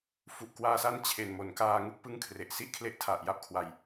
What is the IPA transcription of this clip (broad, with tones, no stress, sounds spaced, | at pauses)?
f u˨˩ ʔ k w aː˧ s a˦˥ n t͡ɕʰ e˨˩ n m o˩˦ n k aː˧ ŋ u˥˩ k̚ p ɯ˦˥ ŋ kʰ r e˨˩ ʔ s i˥˩ ʔ kʰ l e˦˥ ʔ tʰ a˨˩ ʔ j a˥˩ p̚ kʰ w a˧ j